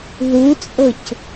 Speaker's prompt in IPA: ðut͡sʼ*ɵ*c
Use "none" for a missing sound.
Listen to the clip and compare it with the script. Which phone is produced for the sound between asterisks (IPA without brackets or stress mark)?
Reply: ɤ